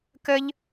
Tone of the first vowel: high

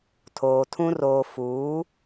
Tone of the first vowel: low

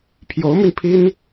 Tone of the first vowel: rising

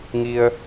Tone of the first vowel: low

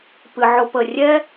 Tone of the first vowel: low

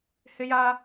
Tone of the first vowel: high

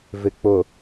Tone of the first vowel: low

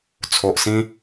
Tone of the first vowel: low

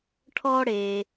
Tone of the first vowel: high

